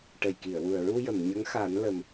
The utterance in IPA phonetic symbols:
ʈə˨˩jki˨˩˨ə̯wu˨˩ə̯ɹu˧ jə˨˩˨mɲə˧˥ŋxa˨˩˦nlə˨˩m

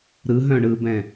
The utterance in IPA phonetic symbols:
ɾɯɦœ̃ ɳɯbɛ̃

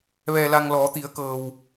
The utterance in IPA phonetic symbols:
ʋɛː˧la˧ŋ lɔː˩˧t̪i˩˧ə̯kɤː˩w

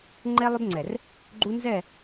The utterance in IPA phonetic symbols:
ŋ͡ǃɛ˦lˠʏ˦bŋ͡ǀɛ˨r | ɡ͡ǃu˦nzɛ˦˨

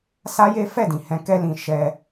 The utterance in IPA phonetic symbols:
sa˦je˦ fɛ˦˨dĩ˨ hɛ̃˧ kɛ˧lĩ˨ ʃɛ˧

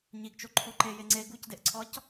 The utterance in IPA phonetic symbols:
ɲiɡt͡ʃoǃʰo ǃeje ŋ͡ǀe ɡucdeʔǀʰɒc

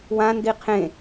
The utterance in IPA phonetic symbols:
wãndi qʰẽ

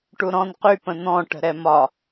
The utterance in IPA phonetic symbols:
ʈuɾɔ̃n qy pə̃n̪ɔ̃ ʈə̤ɾɛmɒ

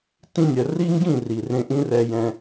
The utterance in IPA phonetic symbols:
tĩ˧nʲɜ˨ri˦ŋɡĩ˦˨ ri˨ rẽ˧ʔĩ˦rɛ˧jɛ̃˧

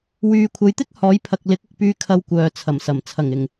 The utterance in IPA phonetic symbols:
wyː˨kʷʰɐ˨˧jt̪ɪ˥k̚ hɔː˨˥jpʰɐ˨k̚ lɪ˨˥k̚ʊ˨k̚pyː˧ kʰɐ˧wkʷœː˨ t͡sʰɐ˨˩msɐ˨˩m t͡sʰɐ˨˩ŋɪ˨˩ŋ

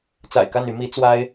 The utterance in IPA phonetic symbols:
t͡sa̰˨˩ɪ̯ka˥˨ny˨˦ mi˨˦t͡swa˦ɪ̯

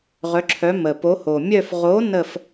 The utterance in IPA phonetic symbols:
ʁœ˨˦ǁʰœ˨˦mə˨˩ po˨˦ ho˨˩mʲœ˥˧f ʁo˨˦ nə˥˧f

